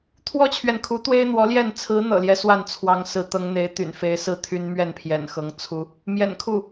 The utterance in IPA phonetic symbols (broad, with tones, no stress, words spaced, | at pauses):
t̪ʰwɔ˥t͡ɕʰɥɛ˨nkʰu˧˥ t̪we˥ɪ̯n̪wɔ˧˥ljɛ˥˩n t͡sʰɹ̩˧˥n̪ɤ̰˨˩ljɛ˦ swa˥˩nt͡sʰwɑ˧˥ŋsɹ̩˧˥ t̪ɤ˧˥ŋn̪e˧˥ɪ̯t̪y̰˨˩n fe˧˥ɪ̯sɹ̩˥˩ t̪ʰy˥nmɥɛ˥˩npʰjɛ̰˨˩nxɤ˧˥ŋ t͡sʰu˥ | mjɛ̰˨˩n kʰu˥˩